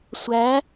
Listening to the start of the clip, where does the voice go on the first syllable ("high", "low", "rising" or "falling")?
rising